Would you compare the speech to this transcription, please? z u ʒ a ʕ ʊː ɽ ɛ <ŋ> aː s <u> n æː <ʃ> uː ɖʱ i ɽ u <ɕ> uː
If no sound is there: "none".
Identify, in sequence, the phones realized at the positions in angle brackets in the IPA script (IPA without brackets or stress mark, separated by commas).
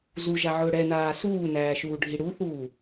n, uː, ʃ, θ